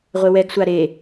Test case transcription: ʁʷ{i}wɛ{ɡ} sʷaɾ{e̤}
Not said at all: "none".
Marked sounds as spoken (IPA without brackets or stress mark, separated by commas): e, ɡ, e